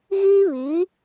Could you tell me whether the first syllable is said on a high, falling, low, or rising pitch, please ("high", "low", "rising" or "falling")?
high